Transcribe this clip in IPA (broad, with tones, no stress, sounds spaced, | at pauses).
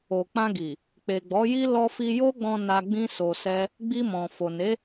o˨ k͡p ã˧ ɡ i˨ | k͡p e˨ ɡ͡b ɔ˨˦ j i˦ l ɔ˧ f i˧ j o˦ ɡ͡b ɔ̃˧ n a˧ ɡ͡b ĩ˦ s o˧ s ɛ˦ | ɡ͡b i˧ m ɔ̃˨ f o˨ n e˨˦